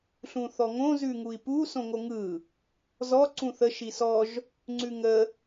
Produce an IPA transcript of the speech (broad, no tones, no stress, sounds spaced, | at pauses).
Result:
ɬ ũ θ ɔ ŋ õ z ʉ ŋ u i̯ p u s õ ŋ o ŋ ɯ | z ɔ ǀ ũ θ ə ʃ i s ɔ ʒ | ŋ͡ǀ ʉ ŋ ə